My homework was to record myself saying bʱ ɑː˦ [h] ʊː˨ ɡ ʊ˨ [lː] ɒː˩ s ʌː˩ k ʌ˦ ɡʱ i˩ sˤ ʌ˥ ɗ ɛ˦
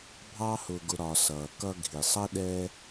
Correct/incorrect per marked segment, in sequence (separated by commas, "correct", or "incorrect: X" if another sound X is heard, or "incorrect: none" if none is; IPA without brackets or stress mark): correct, incorrect: ɾ